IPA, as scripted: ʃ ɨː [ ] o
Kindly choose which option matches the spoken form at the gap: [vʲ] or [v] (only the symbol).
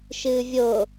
vʲ